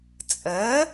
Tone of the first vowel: rising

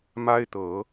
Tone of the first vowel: high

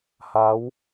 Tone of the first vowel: rising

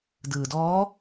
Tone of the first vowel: low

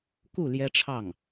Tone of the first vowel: falling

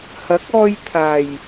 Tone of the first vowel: rising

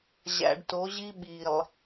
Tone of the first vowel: low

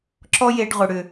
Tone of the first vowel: high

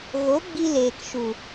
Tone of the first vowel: rising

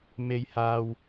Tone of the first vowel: high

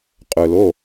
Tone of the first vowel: low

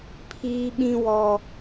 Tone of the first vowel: high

